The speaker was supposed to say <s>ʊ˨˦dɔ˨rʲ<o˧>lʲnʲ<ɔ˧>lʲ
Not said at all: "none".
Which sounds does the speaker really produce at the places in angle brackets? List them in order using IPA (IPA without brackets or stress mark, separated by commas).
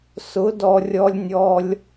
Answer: s, ɔ˧, ɔ˧